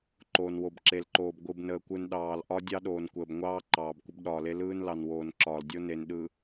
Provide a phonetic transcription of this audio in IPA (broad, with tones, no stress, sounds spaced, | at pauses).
ǃ oː˨ n w o˨ b ǁ e˨ l ǃ oː˨ b ɡʷ ɯ˨ b n əː˨ kʷ ɯ˨ n ɗ ɑː˨ l ʔ ɒ˦ dʲ ɑ˦ ɗ oː˨ n kʷ əː˨ b ŋʷ ɑː˦ ǃ ɑː˨ b kʷ ə˦ b ɗ ɒː˨ l e˦ l ɯː˦ n l ɑ˨ n w oː˨ n ǁ ɒː˨ l dʲ o˦ n e˨ n ɗ ɯ˨